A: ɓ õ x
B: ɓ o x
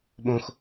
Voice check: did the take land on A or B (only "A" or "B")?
A